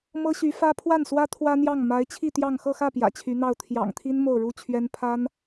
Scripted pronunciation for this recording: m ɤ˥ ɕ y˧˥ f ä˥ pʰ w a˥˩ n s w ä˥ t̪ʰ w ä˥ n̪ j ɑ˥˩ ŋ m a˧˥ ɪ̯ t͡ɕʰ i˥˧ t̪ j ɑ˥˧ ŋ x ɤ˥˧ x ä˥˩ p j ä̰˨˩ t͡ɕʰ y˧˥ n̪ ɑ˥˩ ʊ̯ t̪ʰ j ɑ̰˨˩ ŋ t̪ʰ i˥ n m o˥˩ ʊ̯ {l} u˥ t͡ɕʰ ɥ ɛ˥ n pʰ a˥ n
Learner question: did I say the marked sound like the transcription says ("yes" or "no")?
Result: no